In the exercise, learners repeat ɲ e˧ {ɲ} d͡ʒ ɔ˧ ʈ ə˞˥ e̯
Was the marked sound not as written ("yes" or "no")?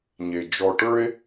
yes